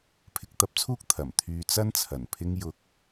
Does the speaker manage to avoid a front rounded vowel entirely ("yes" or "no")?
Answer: no